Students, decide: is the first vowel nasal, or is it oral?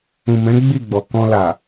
nasal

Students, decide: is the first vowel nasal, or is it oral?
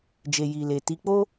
oral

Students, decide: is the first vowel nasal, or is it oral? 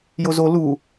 oral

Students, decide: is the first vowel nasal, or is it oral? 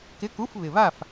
oral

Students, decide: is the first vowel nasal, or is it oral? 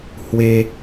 oral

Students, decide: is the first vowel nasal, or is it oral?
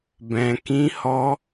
nasal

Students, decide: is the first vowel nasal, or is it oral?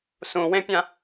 nasal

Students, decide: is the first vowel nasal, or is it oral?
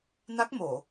oral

